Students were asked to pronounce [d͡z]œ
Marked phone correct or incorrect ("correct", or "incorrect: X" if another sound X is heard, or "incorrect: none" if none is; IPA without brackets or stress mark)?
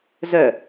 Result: incorrect: z